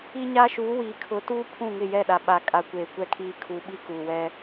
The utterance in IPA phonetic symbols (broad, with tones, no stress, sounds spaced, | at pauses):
i˦ ɲ a˦ ʃ uː˨˦ w iː˨ kʰ ʊ˨˦ t uː˦ pʰ ũ˦˨ ŋ ɪ˦˨ j ɛ˦˨ ɗ a˨ ɓ a˨ kʼ a˨ kʷ eː˨ kʷ ɛ˨ kʰ iː˨ kʰ uː˨ ɓ i˦ k uː˨ w ɛ˦